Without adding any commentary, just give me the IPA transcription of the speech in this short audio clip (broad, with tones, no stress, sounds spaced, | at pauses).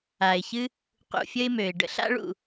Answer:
a˨ ɪ̯ ç ɨ˦ | q ṵ˧ fʲ ə˦ ɪ̯ m ø˨ ɪ̯ ɖ ə̰˦ ɬ a̰˦ ɭ ṵ˦˨